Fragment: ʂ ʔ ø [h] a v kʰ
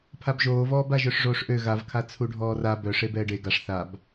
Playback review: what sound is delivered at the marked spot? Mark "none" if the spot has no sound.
ɣ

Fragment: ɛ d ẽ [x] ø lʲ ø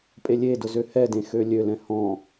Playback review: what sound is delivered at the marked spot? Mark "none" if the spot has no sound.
x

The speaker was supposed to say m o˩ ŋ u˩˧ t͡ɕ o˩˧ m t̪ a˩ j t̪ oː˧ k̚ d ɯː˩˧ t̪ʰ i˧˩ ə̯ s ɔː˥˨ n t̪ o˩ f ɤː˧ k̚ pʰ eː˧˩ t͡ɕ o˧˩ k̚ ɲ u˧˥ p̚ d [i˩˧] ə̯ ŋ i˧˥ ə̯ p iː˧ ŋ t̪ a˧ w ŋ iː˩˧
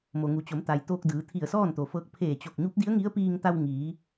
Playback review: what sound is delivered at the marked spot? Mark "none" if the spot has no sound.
i˧˥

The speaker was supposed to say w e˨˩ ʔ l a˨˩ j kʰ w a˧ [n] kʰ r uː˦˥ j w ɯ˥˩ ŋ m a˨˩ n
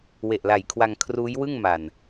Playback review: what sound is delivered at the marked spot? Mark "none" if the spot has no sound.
ŋ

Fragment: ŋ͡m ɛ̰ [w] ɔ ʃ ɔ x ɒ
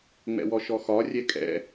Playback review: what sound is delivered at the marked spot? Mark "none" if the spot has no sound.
w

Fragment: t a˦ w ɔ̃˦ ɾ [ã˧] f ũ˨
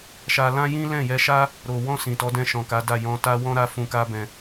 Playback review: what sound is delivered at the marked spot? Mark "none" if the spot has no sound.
a˧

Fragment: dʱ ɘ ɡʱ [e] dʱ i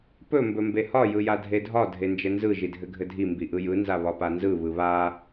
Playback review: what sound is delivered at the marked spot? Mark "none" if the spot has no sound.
ɘ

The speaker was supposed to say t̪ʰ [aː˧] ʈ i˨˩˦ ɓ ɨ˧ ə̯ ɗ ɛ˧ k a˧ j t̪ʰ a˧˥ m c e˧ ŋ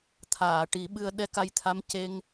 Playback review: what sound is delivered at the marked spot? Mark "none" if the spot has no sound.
aː˨˩˨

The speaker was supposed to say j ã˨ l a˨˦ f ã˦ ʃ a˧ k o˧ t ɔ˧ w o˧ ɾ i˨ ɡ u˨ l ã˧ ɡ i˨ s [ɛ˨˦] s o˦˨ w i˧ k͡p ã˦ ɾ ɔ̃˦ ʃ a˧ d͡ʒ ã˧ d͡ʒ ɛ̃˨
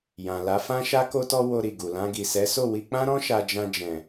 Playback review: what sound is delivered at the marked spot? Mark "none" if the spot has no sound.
ɛ˨˦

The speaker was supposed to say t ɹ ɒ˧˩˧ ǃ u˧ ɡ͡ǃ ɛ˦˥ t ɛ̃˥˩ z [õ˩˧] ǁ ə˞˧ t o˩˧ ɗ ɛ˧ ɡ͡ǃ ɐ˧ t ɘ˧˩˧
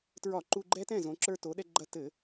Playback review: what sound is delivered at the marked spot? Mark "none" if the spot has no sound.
õ˩˧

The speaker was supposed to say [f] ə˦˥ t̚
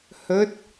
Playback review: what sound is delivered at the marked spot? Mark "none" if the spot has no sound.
h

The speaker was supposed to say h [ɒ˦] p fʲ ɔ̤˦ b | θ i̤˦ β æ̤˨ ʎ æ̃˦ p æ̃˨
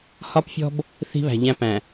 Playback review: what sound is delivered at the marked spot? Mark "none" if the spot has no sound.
ɒ˦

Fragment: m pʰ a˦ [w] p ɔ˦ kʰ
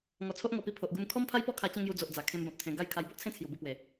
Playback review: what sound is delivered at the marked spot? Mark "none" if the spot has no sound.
j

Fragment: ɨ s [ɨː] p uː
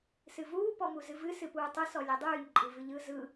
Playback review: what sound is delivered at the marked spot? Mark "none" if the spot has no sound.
ɨ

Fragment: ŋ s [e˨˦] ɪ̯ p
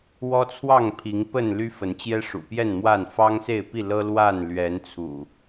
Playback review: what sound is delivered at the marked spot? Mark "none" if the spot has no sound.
e˥˨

